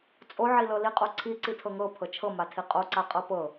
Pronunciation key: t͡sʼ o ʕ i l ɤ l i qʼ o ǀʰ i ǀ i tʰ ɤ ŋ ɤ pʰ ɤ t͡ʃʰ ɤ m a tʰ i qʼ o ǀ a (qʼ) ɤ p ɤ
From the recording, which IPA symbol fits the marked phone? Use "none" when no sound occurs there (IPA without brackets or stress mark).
qʼ